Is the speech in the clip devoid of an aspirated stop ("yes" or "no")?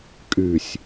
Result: yes